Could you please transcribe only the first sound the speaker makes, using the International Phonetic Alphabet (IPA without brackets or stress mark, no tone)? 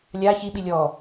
lʲ